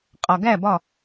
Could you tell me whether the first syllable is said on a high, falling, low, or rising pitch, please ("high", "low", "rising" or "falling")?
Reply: low